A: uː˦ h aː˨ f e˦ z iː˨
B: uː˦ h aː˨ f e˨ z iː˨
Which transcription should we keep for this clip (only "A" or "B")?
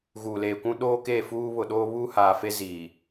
A